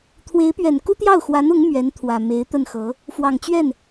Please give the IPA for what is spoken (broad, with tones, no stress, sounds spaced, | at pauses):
t̪ʰ w e˧˥ ɪ̯ p ɥ ɛ˨˩ n k u˥ t̪ j ɑ˥˩ ʊ̯ x w a˧˥ n ʊ˧˥ ŋ m ɥ ɛ˧˥ n t̪ʰ w ä˨˩ m e˧˥ ɪ̯ t̪ ə˥˩ n x ɤ˧˥ | f w ɑ˨˩ ŋ t͡ɕ ɥ ɛ˥˩ n